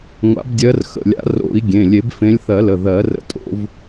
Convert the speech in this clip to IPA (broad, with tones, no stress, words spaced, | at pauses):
ŋʷa̰˨˩˦bdʲɜ˨˦rxə̰˩˧˩lʲa̰˨˩˦ ro̰˨˩˦i̯ ɡʲẽ˩˧˩lʲe˨˩˦b fẽ˨˦lʲθɜ˨˩˦lə˩˧˩ ðɜ˨˩˦rə̰˨˦ tʼo̰˨˦v